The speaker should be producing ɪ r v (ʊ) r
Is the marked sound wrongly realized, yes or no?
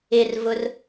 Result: no